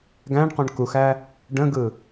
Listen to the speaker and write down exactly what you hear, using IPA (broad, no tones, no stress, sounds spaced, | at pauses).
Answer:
ɡ æ̃ ɳ q õ ɳ k u x æ | ɖ ə̃ ɡ ɯ